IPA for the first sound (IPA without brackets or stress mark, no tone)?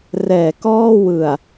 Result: r